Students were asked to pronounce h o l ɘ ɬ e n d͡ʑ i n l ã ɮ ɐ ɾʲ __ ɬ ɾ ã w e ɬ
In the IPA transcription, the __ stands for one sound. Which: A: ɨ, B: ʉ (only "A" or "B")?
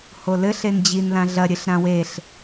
A